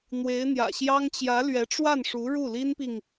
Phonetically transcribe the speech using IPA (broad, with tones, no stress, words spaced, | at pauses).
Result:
n̪we˧˥ɪ̯n̪jä̰˨˩ɕjɑ˥ŋ t͡ɕjä˧˥lɥɛ˧˥ʈ͡ʂwa˥˩nʂu˧˥ ɻu˥˩li˥npi˨ŋ